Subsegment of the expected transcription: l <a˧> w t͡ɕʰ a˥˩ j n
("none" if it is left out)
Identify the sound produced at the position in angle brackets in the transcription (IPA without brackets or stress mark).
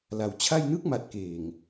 a˩˦